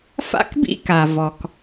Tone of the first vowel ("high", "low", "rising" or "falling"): high